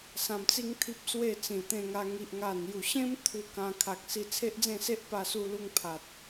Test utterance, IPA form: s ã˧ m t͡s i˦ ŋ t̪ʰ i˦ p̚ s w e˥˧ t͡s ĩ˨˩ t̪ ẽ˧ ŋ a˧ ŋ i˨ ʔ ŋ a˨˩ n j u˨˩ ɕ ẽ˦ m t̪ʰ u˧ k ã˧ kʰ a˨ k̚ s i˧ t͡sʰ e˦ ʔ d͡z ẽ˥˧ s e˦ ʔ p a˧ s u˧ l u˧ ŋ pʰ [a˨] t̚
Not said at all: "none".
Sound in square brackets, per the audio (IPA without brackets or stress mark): a˨